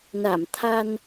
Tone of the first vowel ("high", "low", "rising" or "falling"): low